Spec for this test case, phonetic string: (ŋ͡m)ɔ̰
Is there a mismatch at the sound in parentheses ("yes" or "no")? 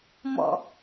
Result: yes